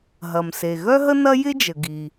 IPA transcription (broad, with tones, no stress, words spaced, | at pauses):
ɦɐ˩mse˩ ɣœ˥ɦə˥nɐ˥ jɪ˥d͡ʒə˩ ɡi˩